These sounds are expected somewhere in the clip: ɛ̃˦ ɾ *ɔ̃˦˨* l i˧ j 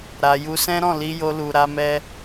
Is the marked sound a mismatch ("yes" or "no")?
no